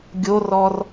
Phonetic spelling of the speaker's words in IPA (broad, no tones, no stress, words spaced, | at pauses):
ɡʲorɔr